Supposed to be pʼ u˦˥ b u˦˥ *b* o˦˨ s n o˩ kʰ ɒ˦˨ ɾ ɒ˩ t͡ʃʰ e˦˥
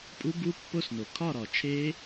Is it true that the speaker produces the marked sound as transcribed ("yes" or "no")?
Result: no